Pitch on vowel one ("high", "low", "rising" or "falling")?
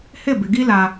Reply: falling